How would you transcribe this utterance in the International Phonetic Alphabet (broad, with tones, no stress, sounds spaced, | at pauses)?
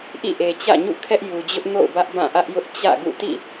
ʔ ḭ˦˨ ʔ e˨ t͡ɕ ä̰˦˨ ɲ ṵ˦˨ kʰ ɛ˦ ʔ j u˨ d͡ʑ ʊ˦ ʔ n o̰˦˨ ʊ̯ b ä˦ ʔ b ã˦˨ ʔ ä˦ ʔ j ʊ˦ ʔ t͡ɕ ä̰˦˨ ɡ ṵ˦˨ t ḭ˦˨